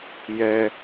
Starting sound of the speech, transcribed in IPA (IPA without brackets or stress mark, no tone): j